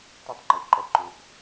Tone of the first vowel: high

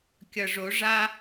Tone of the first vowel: low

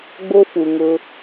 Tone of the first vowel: high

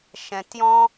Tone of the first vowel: low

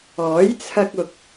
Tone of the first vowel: rising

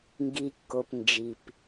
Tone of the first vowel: low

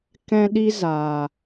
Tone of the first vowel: high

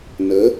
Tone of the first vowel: rising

